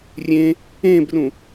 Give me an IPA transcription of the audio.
rʲ ẽ | ẽː b r ũ

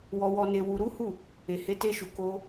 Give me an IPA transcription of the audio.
w ɔ˧ w ɔ˧ n e˧ w u˧ ɾ u˦ h u˦˨ | e˨ h e˨˦ t e˧ ʃ u˨ k o˧

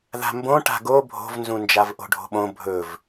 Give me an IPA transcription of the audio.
ð a̤ m b õ ʈ a̤ ɡ o bʱ o̤ v n z ũ n d͡ʒ a v ʔ o̤ ɖʱ o̤ ɓ õ bʱ ɵ v

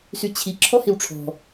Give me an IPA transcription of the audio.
s y t͡ɕʰ i ǁʰ ɔ h i w ʈ͡ʂʰ ɔ̤

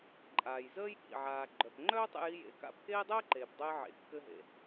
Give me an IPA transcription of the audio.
ǃʼ aː˩ j z əː˥ j ɠ ḭ˩ ʕ aː˩ ɡ͡ǃ œ˩ p ŋ͡ǃ œː˥ tˤ ḛ˧ j i˧ j ḛ˩ k a̰˧ p k eː˥ dˤ əː˥ ǃ eː˩ p dˤ œ˧ j ʕ ḛ˩ kː ɘː˧ ɦ ḛ˩

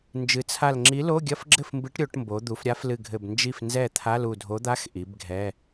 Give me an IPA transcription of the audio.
n d͡ʒ ɨ˩˧ t͡sʰ a˧˩ l ŋ͡ǁ i˨˥ l o˧˥˧ ɡʲ ɐ˧˥˧ f ɡ͡ǁ ɘ˥˩ f m b ɨ˨˥ ʈ ɾʲ o˩˧ ʈ m b o˩˧ d̪ u˩˧ f ɾʲ a˨˥ f l ɨ˧˩ ɡʱ ɘ˧˩ b n d͡ʒ i˥˩ f n z ɛ˥˩ t̪ʰ a˧˥˧ l u˧˩ dʱ o˨˥ d̪ a˧˥˧ x ʔ i˩˧ b ɡʱ ɛ˧˥˧

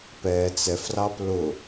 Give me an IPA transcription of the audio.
p ɛ t͡s ɛ f r ɑ p l ʊ

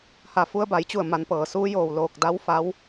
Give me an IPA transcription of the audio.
h a˧˩ f u˧ ə̯ b a˩˧ j t͡ɕ u˧˩ ə̯ m a˩˧ n p ɤː˩ s uː˧ j oː˧˩ w l oː˧˩ k̚ d a˧˥ w f a˧˥ w

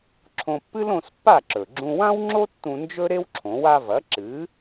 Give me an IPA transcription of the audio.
ǁʰ õ˧ pː ɨ˥ l õ˧ s pː a˥˩ ǁ ɵ˩ ɡ͡ǁ ũ˧ w ã˥ w ŋ͡ǁ o˥ tː ũ˧ n d͡ʒ ɵ˥ ɾ e˥ w ǁʰ õ˩˥ w a˧ v ɐ˩˥ ǁ ɨ˩˥

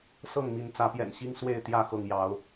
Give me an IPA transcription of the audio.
s ɤ˥˨ ŋ m i˨˦ n t͡s ä˨˦ p j ɛ̰˨˩ n ɕ i˦ ŋ s w e˥˨ ɪ̯ t̪ j ä˥˨ x ɤ˥˨ ŋ j ɑ˨˦ ʊ̯

